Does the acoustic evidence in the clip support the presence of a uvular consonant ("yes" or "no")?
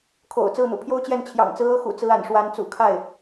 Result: no